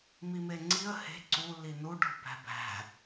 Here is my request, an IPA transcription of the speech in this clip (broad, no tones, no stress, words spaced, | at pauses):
mimeŋ͡ǀiə̯ he̤ ǀu linuɖ o̤bæ̤bæ̤